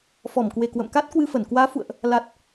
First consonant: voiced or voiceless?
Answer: voiceless